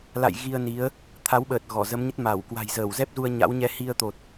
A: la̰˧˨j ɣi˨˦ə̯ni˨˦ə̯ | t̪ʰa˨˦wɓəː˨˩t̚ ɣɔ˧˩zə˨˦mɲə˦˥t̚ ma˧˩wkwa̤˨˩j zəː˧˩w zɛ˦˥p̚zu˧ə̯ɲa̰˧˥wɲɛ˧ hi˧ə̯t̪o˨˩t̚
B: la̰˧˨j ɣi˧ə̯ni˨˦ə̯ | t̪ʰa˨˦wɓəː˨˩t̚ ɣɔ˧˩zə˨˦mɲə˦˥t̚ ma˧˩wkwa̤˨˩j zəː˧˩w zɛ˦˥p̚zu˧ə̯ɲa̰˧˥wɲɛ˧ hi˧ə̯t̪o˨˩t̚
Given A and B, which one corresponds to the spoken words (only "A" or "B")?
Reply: B